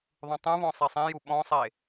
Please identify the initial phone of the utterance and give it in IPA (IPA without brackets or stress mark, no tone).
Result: ðˤ